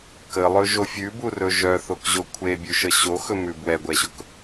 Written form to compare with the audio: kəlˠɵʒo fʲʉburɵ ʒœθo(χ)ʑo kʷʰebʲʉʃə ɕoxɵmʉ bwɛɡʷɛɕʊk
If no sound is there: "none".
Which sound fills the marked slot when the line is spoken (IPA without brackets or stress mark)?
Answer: k